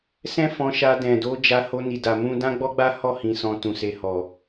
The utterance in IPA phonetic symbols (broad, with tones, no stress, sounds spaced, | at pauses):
s ɛ̃˦ f ɔ̃˧ ʃ a˧ d ɛ̃˨ d o˨˦ d͡ʒ a˧ h o˧ n i˨ d a˨ m ũ˧ d ã˦ ɡ͡b ɔ˦ ɡ͡b a˦ h ɔ˦˨ h ĩ˨ s ɔ̃˧ t ũ˨ s e˧ h ɔ˨